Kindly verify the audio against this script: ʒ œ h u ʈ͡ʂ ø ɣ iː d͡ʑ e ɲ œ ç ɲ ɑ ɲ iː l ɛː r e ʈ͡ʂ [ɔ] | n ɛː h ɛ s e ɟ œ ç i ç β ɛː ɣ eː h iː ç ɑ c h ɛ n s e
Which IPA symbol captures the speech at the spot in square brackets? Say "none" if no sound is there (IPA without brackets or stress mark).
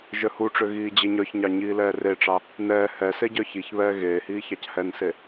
ɑ